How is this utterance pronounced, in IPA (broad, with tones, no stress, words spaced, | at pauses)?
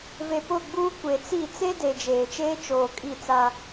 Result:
ve˨ pʊ˦˨ɡ͡buː˦kʷe˨ t͡si˦˨ t͡se˦ de˨d͡ʒeː˨t͡ʃeː˦ t͡ʃoː˨kʼi˦˨t͡sa˦